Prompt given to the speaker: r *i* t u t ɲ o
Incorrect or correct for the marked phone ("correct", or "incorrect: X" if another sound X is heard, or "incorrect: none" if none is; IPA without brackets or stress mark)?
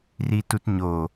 correct